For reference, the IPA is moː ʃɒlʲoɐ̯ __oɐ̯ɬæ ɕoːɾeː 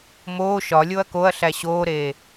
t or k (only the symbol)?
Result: k